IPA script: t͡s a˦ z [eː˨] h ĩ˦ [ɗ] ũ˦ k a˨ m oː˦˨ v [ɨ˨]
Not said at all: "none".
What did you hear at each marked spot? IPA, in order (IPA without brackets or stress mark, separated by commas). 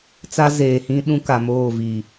eː˨, ɗ, i˨